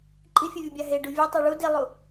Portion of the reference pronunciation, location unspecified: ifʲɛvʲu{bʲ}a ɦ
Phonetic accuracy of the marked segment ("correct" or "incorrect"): correct